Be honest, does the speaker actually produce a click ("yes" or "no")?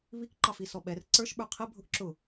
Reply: yes